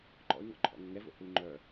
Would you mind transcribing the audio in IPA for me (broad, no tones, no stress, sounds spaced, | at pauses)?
ǃ ɔ̰ y̯ ŋ ɔ̰ ǃʰ ɔ̰ ŋ ə ŋ ɛ v o̰ h u y̯ ŋ͡ǃ œ